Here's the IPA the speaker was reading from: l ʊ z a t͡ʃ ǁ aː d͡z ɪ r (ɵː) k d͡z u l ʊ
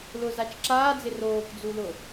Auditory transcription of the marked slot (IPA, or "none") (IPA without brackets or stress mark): oː